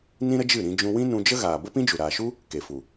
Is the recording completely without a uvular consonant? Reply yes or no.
yes